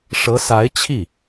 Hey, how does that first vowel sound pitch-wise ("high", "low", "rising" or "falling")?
rising